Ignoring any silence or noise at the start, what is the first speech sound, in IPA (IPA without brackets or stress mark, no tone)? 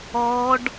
ɔ